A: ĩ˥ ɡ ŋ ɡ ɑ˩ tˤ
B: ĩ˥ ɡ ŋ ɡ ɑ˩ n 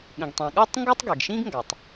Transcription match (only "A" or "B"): A